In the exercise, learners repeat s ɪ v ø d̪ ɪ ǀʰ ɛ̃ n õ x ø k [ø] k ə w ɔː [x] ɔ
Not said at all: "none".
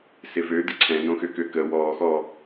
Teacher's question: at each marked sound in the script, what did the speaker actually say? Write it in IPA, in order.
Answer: ø, x

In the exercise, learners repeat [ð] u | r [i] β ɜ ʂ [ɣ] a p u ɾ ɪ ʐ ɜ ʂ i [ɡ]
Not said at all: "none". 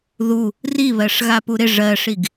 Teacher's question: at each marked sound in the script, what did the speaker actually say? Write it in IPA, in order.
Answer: ð, i, ɣ, ɡ

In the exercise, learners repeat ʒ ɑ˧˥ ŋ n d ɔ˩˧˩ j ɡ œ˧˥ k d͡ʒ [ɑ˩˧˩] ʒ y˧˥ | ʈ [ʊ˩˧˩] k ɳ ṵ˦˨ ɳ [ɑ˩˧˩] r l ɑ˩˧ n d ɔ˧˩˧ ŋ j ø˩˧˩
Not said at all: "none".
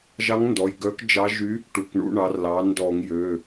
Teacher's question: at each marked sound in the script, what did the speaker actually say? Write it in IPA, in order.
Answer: ɑ˧˥, u˩˧˩, ɑ˩˧

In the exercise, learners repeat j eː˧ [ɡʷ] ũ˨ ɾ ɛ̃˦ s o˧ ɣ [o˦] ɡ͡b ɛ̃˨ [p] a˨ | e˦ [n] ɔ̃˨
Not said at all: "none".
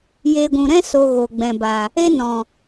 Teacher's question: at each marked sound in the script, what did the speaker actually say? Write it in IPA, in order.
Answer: ɡʷ, o˨, b, n

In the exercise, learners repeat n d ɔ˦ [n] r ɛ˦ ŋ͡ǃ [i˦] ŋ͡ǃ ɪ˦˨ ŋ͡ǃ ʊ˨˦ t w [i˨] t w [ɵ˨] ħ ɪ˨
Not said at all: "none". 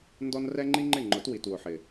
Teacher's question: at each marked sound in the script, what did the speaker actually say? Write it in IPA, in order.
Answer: n, i˦, i˨, ʊ˨

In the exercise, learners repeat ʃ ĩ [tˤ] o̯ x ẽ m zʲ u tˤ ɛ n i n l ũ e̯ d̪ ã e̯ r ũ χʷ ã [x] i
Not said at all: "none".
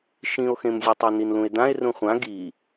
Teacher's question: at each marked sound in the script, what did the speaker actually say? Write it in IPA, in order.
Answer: none, ɡ

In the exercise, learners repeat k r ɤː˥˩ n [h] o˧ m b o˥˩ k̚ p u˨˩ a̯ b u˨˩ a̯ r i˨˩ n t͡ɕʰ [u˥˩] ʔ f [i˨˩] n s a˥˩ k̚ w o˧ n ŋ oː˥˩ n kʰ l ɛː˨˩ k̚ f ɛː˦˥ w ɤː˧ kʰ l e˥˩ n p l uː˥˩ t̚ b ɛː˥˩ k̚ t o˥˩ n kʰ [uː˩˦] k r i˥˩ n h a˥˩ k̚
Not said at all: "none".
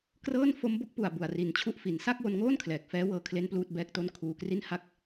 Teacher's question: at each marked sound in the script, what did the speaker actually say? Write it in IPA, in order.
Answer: f, u˥˩, i˨˩, uː˧

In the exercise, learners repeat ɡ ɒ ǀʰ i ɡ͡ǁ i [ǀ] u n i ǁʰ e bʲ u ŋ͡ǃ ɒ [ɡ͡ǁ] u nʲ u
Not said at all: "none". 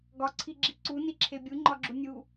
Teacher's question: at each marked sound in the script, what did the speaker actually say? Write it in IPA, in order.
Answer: ǀ, ɡ͡ǁ

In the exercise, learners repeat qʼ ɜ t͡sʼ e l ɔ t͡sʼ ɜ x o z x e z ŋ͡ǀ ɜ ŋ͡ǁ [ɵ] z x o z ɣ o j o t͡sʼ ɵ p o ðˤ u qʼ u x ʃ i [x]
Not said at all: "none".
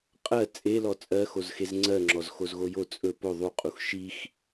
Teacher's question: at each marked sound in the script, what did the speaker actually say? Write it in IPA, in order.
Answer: ɔ, x

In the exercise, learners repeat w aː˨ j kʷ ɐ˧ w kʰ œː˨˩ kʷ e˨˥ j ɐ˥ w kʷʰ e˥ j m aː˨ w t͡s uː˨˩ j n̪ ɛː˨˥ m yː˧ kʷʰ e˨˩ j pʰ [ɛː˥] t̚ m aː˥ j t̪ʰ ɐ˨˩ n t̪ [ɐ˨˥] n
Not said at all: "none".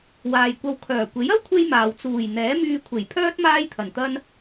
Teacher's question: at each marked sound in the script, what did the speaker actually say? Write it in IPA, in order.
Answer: œː˥, ɐ˥

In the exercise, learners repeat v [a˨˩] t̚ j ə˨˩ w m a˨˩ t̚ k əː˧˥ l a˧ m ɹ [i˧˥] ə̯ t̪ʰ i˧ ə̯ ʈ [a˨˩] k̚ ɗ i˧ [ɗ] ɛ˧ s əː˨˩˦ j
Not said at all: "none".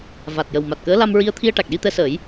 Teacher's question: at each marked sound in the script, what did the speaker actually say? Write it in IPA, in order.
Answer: a˨˩, i˧, a˨˩, t̪

